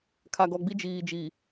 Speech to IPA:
kʰ a˨ ɡ ɔ˨ ɡ͡b i˦ d͡ʒ iː˨ d͡ʒ iː˨

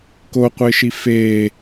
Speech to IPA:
k o qʷ ɪː ʃ i f e

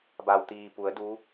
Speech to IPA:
b a˩ w t̪ iː˩ p u˩˧ ə̯ d u˧˥

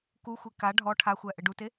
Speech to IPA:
k u xʷ e k a ɖʱ ɔ ʈʰ a xʷ æ ʔ ɘ ɖ u t e

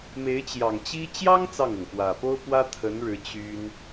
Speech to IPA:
m e˧˥ ɪ̯ t͡ɕ j ɑ˨˩ ŋ t͡ɕ i˥ t͡ɕ j ɑ˥ ŋ t͡s ɑ˥˩ ŋ ɤ˩ ŋ p w ä˨˩ p o˥ ʊ̯ p w ä˥ t̪ʰ ə˧˥ n ɻ ɻ̩˧˥ t͡ɕ y˥ n

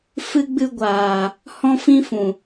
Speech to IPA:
f ɨ˧ ɡ͡b ɨ˧ ɡʷ aː˨ | h ɔ̃˧ f ĩ˧ f ũ˨

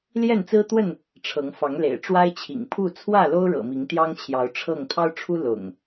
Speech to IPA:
l j ɛ˥˨ n t͡s ɹ̩˦ t̪ w ə˥˨ n | ʈ͡ʂʰ ɤ˨˦ ŋ f ɑ˨˦ ŋ l ḛ˨˩ ɪ̯ ʈ͡ʂ w a˦ ɪ̯ t͡ɕʰ ḭ˨˩ ŋ pʰ u˥˨ t͡sʰ w ä˥˨ l o˦ ʊ̯ ɻ ɤ̰˨˩ m i˨˦ ŋ t̪ j ɑ˦ ŋ t͡ɕʰ j ɑ˨˦ ʊ̯ ʈ͡ʂʰ ɤ˥˨ ŋ t̪ʰ ɑ˦ ʊ̯ ʈ͡ʂʰ u˦ l ʊ̰˨˩ ŋ

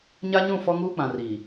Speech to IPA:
ɲ a˦ ɲ ũ˦˨ f ɔ˦ ŋ uː˦ k͡p ã˨ r iː˨

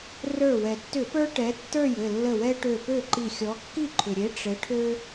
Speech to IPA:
r ə˞˧˩ w ɛ˩ tː ʏ˧˩˧ p ə˞˦ ʈ ɛ˨˥ tː ə˞˥˩ j ɘ˧˩ lː ə˧˩ w ɛ˦ ʈ ø˧˩ p ø˥˩ ǃ i˧˩ xʲ ɔ˨˥ kː i˥˩ ǃʰ ʏ˩ ɾʲ e˨˥ ʈ͡ʂ ɘ˨˥ ʈʰ ø˦

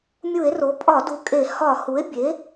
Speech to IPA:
mʲ u˧˩˧ e̯ r o˩˥ pʼ ɒ˧˩˧ d u˨˩ kʼ e˧˩˧ h ɒ˧˩˧ h u˩˥ e̯ bʲ e˩˥

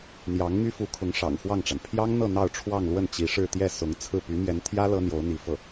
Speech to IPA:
n̪ j ɑ˧˥ ŋ m y˥ f u˧˥ kʰ ʊ˧˥ ŋ ʂ ɑ̰˨˩ ŋ x w ɑ˥˩ ŋ ʈ͡ʂ a˩ n pʰ j ɑ˥ ŋ n̪ ɤ˥˧ n̪ ɑ˥˧ ʊ̯ ʈ͡ʂʰ w ɑ˥˧ ŋ l w ə˥˩ n t͡ɕ i˧˥ ʂ ɻ̩˥˧ t̪ j ɛ˥˩ s ʊ˧˥ ŋ t͡sʰ ɹ̩˥˩ p y˧˥ m j ɛ˧˥ n t̪ʰ j ä˥ l ɤ˥ n̪ j o˧˥ ʊ̯ n̪ i˧˥ f ɤ˥˩

